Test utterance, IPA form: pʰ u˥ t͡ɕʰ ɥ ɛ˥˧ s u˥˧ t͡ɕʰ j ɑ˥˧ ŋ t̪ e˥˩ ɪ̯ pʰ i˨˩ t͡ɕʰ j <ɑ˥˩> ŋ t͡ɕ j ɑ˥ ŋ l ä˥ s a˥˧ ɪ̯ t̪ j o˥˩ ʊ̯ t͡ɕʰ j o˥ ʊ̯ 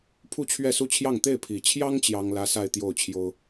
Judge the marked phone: incorrect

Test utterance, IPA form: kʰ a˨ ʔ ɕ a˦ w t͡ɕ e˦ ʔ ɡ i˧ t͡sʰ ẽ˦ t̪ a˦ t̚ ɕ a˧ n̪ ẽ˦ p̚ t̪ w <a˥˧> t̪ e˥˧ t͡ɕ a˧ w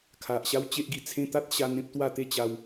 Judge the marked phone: correct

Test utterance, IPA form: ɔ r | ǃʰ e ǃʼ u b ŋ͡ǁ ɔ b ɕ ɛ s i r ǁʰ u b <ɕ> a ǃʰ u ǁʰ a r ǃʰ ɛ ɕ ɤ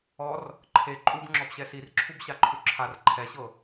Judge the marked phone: correct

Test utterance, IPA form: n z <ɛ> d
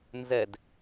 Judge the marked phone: correct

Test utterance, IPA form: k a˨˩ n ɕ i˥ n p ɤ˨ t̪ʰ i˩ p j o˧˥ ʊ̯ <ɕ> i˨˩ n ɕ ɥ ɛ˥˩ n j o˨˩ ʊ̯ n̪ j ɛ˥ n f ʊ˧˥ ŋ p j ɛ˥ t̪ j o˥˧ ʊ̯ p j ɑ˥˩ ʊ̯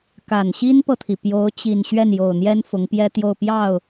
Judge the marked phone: incorrect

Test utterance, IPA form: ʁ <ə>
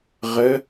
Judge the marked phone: correct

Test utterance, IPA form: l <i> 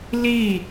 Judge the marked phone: correct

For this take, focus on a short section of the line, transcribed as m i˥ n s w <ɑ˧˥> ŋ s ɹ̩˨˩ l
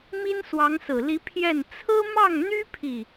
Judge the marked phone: correct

